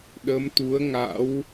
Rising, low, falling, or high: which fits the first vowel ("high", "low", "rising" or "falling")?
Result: rising